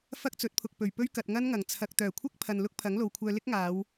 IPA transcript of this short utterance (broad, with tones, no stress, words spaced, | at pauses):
fɐ˥k̚t͡sɵ˨˥t̚pʰʊ˨k̚pɵ˨˩ɥ pɵ˥ɥkɐ˨t̚ŋɐ˥nŋɐ˨˩ŋ t͡sʰɐ˨k̚t̪œː˨˩kʷʰɐ˥k̚ pʰɐ˧n lʊ˥k̚pʰɐ˨˥ŋlo˨wkʷʰœː˧ lɪ˥k̚ŋaː˨˧w